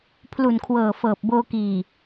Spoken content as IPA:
pʰ l u˨˩ n kʰ w ɤː˨˩ f ɤː˨˩ p̚ b oː˧ k iː˨˩

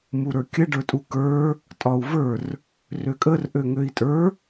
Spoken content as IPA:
m u ɾ ə˞ kʲ ə ɖ ə˞ tʼ u k ə˞ | tʼ ɒ u̯ v ə˞ r | r ø kʼ ə r ʔ ø ŋ ø i̯ tʼ ə˞

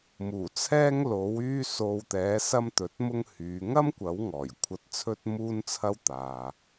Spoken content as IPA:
m uː˨˩ t͡sʰ ɛː˥ ŋ l o˨˥ w yː˥ s o˧ w t̪ ɛː˨˥ s ɐ˥ m t̪ ɵ˨˥ t̚ m ʊ˥ ŋ h yː˨˧ ŋ ɐ˥ m kʷ ɐ˨˥ w ŋ ɔː˨˩ j kʷʰ ɐ˧ t̚ t͡sʰ ɵ˥ t̚ m uː˥ n t͡sʰ ɐ˥ w t̪ aː˨

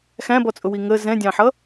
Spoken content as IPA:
x æ̃ b ɔ t͡sʼ ʊ w i ŋ ə z ɛ̃ dʲ ɑ̃ ħ ʌ

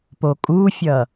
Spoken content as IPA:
p o kʼ u fʲ ʌ

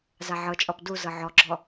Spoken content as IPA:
z a ʕ ɤ t͡ʃʼ ɔ p d u z ɤ ʕ ɔ ɡ͡ǁ ɔ

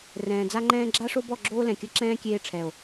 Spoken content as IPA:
r ɛ̃ː˨ d͡z a˦ ŋ͡ǃ ɛ̃ː˦ ɡ͡ǁ a˦ ʂ o˦ b ɔ˦˨ ɡ͡ǁ oː˦ l ɛ̃˨ kʲ ɐ˦ ǁ ɛ̃ː˦ kʲ eː˧ ʈ͡ʂʰ ɛ˨ o̯

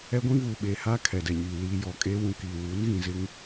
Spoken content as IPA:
ɛ˦ ɡʷ ĩ˦ v uː˨ ɓ eː˨ h aː˦ kʰ ɛ˨ d ɛ˨ ɲ iː˨ l iː˨ j ɔ˨ kʼ eː˦ w ũ˨ k iː˨ w uː˨˦ n ɣ ĩ˨ z ɪ˦ ŋ

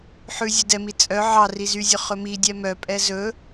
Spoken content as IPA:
ħ ʉ zʲ ɵ d ɛ m i t͡sʼ œ ʕ ɑ r i z y zʲ ɵ χ ɵ m i dʲ ɛ m œ pʼ ɛ z ɵ

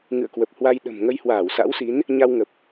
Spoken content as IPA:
ŋ ɨ̰˧˨ ə̯ k w ə˨˩ p̚ h w a˧ j ɗ ə̤˨˩ m ŋ ə˧ j h w aː˧˩ w s a̰˧˥ w s i˨˦ n | ɲ a˧ w ŋ ə˨˩ p̚

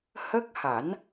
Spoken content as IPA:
h ə˦˥ k̚ h a˨˩˦ n

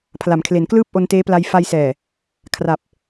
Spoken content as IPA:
pʰ l a˩˦ m kʰ l e˩˦ n k l ɯː˥˩ p̚ ʔ o˧ n t eː˦˥ p l a˧ j f a˧ j s ɛː˨˩ | kʰ r a˨˩ p̚

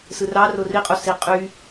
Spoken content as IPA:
s ɯ r ɑ r o r i qʼ o s i qʼ y

